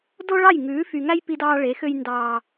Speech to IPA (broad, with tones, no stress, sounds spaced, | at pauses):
d o˦ ɭ ɑ˦˨ j ŋ ʉː˨˦ f y˨ ŋ æ˦ j p i˦ d ɑː˦ ɭ e˨˦ x ø˦ j n d ɑː˦